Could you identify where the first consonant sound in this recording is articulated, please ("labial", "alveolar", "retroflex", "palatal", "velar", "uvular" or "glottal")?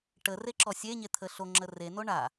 retroflex